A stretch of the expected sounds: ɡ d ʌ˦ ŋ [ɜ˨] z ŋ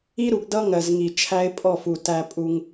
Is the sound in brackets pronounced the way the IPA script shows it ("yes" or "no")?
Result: yes